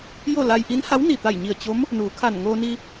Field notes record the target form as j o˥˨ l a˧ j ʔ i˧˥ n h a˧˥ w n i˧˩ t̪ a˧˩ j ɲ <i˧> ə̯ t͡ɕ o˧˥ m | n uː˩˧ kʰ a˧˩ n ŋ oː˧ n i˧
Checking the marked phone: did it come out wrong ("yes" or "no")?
yes